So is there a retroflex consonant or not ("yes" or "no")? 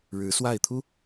yes